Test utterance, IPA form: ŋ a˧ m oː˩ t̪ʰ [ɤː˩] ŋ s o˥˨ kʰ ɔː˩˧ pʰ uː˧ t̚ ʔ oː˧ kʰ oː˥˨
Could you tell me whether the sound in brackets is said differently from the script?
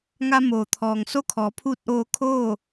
yes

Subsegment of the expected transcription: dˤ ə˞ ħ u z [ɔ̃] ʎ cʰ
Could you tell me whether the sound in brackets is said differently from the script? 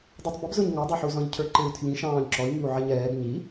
no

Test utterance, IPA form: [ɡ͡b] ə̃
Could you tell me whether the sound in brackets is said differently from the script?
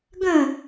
yes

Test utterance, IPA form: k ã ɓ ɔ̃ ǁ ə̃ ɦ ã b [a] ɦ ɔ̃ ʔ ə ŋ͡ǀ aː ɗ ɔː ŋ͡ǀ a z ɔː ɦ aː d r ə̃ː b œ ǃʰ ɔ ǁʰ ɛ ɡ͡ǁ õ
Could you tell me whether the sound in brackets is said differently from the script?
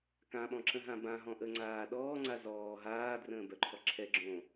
yes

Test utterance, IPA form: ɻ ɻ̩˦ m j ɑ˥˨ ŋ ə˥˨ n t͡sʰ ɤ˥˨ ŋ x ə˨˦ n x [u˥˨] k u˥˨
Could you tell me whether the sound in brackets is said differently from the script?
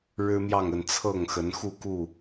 no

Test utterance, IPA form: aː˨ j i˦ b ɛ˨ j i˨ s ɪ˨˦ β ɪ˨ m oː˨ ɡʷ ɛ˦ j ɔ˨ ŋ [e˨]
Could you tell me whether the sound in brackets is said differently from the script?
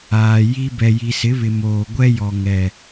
yes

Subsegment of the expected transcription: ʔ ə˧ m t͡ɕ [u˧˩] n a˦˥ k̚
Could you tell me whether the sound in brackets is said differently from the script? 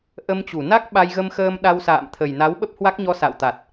no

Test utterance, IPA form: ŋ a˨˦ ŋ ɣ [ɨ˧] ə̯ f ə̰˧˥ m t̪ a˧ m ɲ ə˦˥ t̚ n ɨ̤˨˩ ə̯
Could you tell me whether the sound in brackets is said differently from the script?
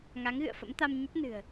yes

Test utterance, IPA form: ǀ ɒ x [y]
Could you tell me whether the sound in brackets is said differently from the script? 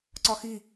yes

